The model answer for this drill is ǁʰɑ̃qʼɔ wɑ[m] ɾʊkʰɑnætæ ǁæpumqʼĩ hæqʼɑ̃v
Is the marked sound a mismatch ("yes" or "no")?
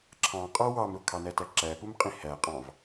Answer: no